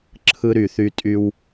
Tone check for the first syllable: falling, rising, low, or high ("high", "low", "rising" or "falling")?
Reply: high